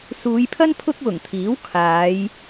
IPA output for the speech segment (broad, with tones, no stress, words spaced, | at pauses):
suː˨˧jpʰɐ˥n pʰʊ˥k̚wʊ˨˩ŋt̪ʰiː˨˥w kʰaː˨˧j